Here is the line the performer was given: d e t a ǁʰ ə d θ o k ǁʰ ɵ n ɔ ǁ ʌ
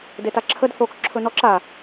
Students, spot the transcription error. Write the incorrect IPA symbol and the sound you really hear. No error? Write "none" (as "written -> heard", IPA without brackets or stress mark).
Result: ʌ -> a